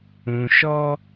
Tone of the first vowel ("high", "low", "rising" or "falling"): low